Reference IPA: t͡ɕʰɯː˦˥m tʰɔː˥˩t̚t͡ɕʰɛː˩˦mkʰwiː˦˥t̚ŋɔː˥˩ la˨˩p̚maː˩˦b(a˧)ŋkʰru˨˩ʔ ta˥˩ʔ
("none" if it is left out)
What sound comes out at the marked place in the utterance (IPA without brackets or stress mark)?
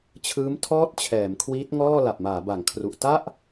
a˩˦